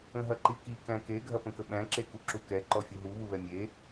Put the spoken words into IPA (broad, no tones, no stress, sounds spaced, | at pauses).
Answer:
ə̃ ɦ ɐ ǃ i k i k æ̃ k e ɡʱ ɐ p ə̃ k ə ɓ æ̃ ǁ e k u ǁ u k ɛ ǃ ɔ fʲ u ɦ u β u β ɛ mʲ e